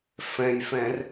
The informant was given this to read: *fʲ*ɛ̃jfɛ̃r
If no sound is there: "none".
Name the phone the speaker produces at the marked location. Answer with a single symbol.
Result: f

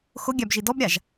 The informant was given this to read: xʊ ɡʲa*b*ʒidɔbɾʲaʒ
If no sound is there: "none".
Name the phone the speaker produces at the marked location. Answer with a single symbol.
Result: b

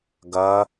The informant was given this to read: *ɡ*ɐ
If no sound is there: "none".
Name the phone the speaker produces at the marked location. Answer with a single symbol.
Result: ɡ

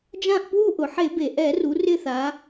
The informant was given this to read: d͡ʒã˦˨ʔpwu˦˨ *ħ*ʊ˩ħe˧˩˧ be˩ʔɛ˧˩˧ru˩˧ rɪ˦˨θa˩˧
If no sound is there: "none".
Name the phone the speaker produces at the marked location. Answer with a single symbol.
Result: ʔ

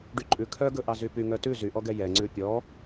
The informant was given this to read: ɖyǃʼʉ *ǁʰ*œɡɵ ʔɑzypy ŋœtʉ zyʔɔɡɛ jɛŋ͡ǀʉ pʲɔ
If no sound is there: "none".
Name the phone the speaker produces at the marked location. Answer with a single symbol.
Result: kʰ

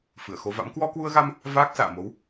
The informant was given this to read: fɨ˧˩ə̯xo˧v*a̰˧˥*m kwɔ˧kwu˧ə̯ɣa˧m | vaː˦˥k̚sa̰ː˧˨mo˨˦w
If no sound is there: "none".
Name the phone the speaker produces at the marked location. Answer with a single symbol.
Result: a̰˧˥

